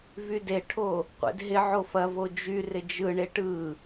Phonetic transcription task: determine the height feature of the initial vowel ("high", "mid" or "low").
high